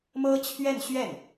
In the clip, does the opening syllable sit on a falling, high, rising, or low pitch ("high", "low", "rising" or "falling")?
high